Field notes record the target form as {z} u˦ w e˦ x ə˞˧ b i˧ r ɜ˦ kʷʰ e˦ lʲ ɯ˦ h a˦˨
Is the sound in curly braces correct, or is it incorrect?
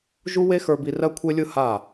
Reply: incorrect